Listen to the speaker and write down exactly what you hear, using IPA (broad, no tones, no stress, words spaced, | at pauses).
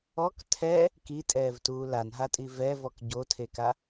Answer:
ɔk tʰɛ | kitʼɛːvtuː lanɦatʼi vɛvɔk ɟotʰeka